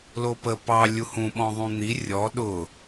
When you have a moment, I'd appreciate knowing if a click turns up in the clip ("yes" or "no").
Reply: no